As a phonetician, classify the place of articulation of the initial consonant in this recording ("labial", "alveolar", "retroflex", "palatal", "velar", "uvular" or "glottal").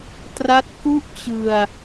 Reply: alveolar